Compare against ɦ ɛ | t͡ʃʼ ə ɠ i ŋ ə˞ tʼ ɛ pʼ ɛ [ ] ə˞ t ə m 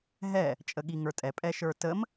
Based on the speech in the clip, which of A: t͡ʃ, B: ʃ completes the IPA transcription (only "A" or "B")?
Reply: B